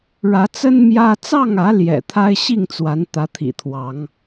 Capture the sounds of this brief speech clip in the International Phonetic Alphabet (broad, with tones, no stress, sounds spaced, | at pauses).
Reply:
ɻ ä˨˦ t͡s ə˦ n m j ä˦ t͡s ɑ˥˨ ŋ ä˨˦ l j ɛ̰˨˩ t̪ʰ a˦ ɪ̯ ɕ i˥˨ ŋ t͡s w a˨˦ n t̪ ä˨˦ t̪ʰ ḭ˨˩ t̪ʰ w ɑ˨˦ ŋ